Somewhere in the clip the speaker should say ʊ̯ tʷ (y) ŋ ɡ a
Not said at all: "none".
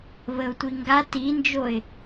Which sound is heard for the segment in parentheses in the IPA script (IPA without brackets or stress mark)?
i